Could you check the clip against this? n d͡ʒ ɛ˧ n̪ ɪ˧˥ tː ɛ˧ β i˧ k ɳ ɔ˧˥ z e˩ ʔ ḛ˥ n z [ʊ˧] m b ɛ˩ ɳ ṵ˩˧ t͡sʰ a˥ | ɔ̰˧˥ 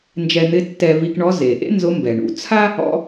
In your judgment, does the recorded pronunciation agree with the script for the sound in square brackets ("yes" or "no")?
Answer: no